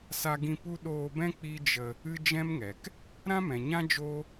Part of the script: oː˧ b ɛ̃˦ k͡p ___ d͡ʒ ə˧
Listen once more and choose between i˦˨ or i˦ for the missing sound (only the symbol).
i˦